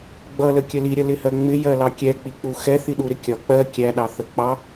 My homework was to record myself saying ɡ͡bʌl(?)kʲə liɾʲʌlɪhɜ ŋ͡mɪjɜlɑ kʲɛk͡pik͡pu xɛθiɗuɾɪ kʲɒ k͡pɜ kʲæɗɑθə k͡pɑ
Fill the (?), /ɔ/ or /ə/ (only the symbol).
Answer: ə